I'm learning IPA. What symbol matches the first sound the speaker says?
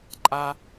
ǃʼ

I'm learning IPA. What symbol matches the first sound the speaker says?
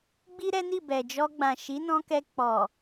ɡ͡b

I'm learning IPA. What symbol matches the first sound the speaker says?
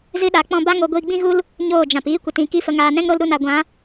z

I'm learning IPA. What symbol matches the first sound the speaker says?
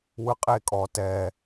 w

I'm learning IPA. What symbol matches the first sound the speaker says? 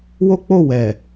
w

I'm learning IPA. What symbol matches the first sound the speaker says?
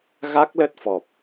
ɣ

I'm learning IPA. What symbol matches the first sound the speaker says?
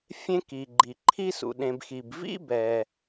fʲ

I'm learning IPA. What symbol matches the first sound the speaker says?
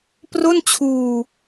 p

